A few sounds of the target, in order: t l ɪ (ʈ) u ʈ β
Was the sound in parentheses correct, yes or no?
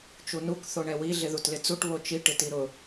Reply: no